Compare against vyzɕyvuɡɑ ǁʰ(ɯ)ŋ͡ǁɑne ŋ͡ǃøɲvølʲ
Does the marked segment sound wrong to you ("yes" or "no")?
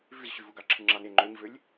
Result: no